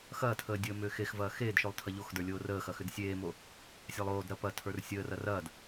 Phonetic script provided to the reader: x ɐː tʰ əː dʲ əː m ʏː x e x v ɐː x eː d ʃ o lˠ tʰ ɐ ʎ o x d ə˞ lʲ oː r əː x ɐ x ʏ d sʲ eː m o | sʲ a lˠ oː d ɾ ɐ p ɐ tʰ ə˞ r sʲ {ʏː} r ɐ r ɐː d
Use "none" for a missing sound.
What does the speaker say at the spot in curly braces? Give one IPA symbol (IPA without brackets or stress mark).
əː